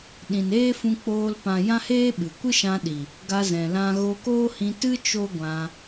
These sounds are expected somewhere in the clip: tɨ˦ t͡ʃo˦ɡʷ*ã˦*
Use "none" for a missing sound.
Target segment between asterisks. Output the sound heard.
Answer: ã˧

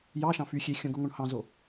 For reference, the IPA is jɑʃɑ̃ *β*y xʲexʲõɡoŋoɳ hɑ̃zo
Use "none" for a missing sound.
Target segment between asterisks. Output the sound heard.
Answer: f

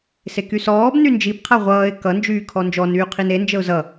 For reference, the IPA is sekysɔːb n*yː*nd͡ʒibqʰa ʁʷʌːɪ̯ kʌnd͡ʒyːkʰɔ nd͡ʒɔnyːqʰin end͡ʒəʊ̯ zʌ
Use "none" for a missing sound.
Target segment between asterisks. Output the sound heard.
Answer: y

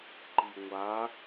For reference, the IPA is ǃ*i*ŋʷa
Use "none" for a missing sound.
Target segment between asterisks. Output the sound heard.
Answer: i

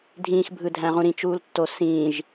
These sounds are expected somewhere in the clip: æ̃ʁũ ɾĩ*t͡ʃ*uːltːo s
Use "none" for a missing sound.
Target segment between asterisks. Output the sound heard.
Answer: t͡ʃ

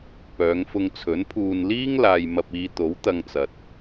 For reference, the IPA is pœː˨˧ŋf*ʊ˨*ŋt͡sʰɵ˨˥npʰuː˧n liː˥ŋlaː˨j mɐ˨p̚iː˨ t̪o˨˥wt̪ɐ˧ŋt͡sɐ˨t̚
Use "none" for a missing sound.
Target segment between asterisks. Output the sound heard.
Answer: ʊ˧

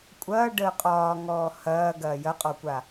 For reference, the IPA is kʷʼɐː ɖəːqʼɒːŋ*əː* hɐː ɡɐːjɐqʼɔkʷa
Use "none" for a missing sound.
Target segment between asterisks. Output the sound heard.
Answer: ɔː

